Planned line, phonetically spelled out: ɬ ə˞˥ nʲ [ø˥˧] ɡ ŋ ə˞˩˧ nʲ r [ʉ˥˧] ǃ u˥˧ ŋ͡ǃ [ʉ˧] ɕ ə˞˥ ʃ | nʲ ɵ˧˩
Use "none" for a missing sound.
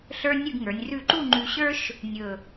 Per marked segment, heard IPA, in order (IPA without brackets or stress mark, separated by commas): ʉ˥˧, ʉ˥˧, ʉ˧